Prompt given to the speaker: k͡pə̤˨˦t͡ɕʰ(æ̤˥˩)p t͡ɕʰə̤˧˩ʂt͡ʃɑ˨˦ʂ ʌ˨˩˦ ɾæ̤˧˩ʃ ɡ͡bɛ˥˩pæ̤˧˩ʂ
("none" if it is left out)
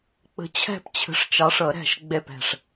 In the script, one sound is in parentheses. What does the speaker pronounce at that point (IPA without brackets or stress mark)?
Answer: æ̤˥˩